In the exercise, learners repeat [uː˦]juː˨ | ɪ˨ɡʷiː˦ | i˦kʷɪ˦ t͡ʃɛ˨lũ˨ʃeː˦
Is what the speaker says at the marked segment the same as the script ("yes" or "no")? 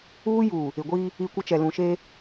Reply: yes